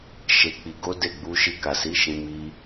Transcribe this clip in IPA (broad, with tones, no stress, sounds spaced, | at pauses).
ʃ e˧ k͡p i˧ ɡ o˦ d e˦˨ ɡ͡b u˧ ʃ i˧ k a˨ s i˨˦ ʃ ĩ˧ m i˧